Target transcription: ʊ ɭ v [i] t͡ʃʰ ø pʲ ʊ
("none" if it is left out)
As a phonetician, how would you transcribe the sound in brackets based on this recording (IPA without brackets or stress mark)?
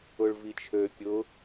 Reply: i